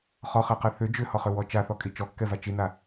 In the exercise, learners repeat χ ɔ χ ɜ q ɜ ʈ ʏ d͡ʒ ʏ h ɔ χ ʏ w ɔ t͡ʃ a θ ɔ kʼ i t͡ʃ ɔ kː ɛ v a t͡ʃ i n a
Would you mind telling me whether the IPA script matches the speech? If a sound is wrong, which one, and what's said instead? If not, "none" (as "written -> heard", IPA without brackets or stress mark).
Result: ʈ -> θ